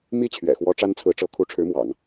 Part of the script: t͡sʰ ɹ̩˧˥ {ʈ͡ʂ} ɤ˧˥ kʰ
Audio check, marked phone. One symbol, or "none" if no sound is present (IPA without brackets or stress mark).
ʈ͡ʂ